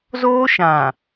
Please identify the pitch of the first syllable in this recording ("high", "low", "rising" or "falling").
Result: high